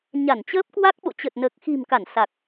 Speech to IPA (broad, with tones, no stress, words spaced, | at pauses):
ɲa˧˩nt͡ɕəː˦˥p̚kwa˦˥k̚ɓo̰˧˨ t͡ɕə˨˩t̚nəː˨˩k̚xi̤˨˩mka˧˩n sa˨˩k̚